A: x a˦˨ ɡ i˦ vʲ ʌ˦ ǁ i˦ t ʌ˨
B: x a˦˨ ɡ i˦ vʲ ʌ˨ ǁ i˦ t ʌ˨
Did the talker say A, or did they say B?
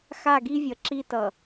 B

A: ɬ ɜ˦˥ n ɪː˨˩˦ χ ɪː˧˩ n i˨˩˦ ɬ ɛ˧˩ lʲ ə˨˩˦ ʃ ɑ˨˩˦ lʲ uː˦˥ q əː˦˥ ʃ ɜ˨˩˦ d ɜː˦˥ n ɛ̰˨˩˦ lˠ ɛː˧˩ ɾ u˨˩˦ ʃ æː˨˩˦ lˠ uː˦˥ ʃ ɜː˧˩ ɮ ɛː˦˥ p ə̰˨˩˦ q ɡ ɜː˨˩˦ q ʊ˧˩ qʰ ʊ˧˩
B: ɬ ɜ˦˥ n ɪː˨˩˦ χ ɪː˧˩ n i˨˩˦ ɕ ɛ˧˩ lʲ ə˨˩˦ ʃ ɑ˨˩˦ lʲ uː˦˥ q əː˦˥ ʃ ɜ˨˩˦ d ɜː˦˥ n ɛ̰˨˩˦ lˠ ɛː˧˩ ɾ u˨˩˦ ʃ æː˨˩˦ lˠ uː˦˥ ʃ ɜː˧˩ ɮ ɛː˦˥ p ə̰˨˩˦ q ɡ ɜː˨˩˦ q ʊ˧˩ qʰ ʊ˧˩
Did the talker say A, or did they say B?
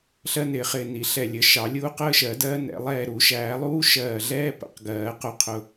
A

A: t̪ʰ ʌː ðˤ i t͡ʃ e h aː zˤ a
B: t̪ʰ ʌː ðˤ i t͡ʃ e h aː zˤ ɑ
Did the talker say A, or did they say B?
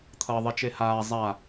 A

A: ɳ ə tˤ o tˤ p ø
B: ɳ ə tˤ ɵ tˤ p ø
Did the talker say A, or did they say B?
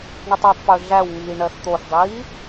A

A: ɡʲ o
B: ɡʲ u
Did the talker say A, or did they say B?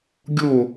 A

